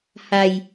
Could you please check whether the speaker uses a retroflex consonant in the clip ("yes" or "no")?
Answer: no